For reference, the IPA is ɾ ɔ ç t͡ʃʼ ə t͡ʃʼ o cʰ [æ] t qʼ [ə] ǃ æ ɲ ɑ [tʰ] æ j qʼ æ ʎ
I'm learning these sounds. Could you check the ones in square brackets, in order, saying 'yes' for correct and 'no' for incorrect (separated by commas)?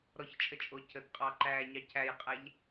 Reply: no, no, no